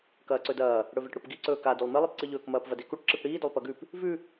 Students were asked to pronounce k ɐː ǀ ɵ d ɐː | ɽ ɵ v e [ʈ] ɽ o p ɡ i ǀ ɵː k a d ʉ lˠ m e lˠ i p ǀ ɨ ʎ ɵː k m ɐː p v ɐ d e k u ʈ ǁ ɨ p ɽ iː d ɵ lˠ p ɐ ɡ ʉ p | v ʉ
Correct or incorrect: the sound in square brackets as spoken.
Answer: correct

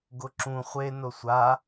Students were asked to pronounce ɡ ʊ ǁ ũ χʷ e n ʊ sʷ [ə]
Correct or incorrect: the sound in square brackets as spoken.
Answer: incorrect: a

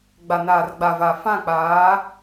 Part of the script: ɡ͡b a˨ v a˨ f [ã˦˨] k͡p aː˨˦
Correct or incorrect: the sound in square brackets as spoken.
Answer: correct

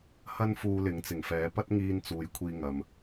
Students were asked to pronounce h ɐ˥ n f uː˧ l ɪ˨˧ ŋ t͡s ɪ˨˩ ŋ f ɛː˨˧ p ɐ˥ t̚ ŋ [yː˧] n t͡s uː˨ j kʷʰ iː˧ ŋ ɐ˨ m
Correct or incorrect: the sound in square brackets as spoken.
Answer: incorrect: iː˧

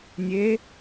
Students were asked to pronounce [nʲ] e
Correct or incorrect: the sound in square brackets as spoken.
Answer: correct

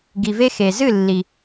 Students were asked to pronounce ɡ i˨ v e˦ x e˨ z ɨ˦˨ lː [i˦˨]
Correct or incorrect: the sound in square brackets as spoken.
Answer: incorrect: i˨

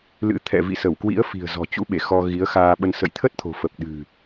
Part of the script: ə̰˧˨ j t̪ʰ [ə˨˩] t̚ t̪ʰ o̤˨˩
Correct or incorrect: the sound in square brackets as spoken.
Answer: incorrect: ə˦˥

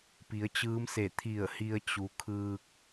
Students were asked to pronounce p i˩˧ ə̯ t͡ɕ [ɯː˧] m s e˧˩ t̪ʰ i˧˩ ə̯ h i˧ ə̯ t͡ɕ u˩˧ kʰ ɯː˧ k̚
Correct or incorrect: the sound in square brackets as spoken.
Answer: incorrect: ɯː˧˥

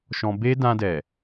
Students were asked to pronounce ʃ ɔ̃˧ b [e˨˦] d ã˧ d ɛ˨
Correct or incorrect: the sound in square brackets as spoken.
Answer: incorrect: e˦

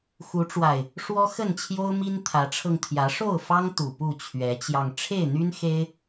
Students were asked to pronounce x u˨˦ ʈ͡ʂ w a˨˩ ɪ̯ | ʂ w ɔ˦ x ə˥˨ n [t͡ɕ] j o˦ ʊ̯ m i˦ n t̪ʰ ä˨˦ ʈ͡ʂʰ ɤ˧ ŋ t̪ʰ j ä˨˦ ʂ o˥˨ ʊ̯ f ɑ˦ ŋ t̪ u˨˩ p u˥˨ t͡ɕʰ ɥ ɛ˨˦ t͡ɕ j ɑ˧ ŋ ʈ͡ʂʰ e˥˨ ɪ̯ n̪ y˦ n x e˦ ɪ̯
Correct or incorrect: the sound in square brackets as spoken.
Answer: incorrect: t͡ɕʰ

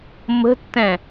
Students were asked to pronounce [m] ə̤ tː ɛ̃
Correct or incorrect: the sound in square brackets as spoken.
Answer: correct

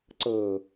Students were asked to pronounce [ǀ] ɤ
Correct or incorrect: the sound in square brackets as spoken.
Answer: correct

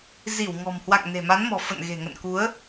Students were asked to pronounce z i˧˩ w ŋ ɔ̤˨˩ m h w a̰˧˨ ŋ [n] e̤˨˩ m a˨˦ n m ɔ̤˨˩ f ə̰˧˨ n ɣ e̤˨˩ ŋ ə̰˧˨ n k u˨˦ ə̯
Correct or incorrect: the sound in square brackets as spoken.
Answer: correct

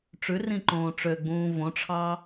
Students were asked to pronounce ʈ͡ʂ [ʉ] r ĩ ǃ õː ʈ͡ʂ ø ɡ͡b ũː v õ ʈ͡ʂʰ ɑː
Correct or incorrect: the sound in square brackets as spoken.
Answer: correct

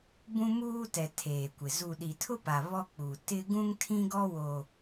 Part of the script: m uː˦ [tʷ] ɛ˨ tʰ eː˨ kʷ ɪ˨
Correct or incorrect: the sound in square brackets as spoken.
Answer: incorrect: t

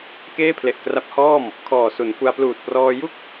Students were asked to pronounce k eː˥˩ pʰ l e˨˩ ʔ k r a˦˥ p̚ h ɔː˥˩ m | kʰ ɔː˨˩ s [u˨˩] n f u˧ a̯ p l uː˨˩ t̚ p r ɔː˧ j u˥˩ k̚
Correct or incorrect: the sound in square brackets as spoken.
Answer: incorrect: u˩˦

